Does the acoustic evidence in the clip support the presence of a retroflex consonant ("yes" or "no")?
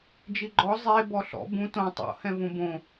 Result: no